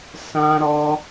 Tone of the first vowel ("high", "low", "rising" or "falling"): high